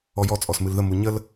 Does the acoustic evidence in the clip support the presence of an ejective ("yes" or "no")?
yes